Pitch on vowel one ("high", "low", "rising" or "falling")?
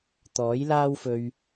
rising